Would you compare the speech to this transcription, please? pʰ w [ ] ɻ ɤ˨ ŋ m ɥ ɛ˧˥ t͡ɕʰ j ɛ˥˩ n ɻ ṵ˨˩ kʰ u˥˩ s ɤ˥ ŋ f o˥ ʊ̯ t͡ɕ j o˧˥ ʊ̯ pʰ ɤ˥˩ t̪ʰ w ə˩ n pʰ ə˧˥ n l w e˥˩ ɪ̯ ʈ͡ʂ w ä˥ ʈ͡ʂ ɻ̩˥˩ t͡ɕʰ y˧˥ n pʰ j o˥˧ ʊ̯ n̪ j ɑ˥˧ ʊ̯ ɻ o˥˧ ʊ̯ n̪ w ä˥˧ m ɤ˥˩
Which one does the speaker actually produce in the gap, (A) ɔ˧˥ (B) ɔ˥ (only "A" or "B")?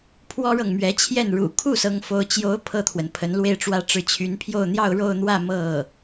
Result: B